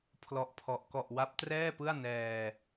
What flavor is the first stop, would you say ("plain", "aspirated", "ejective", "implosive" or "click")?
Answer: aspirated